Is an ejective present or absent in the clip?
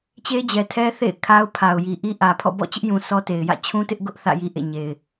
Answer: absent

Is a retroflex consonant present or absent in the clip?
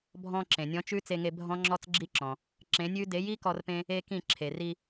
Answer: absent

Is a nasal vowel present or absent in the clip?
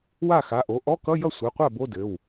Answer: absent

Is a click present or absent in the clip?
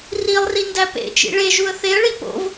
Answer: absent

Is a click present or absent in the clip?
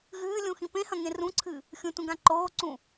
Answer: present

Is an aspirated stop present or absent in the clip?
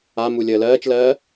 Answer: absent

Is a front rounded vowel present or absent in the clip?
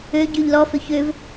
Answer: present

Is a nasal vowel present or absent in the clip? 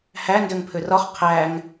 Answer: absent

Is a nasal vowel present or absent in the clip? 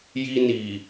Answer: absent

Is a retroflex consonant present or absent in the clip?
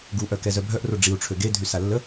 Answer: present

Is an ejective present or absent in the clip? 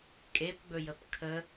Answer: present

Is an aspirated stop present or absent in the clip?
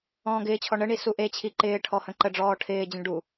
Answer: present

